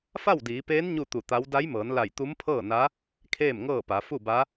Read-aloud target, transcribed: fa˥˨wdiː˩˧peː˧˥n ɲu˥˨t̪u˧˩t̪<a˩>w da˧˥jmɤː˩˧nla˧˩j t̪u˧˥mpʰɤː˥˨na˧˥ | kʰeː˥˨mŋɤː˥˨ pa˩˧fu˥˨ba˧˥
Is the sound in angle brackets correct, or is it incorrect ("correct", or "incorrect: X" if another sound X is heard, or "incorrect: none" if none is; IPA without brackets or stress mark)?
incorrect: a˧˥